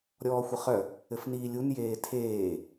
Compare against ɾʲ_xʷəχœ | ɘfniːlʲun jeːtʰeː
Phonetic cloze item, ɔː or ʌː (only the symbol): ɔː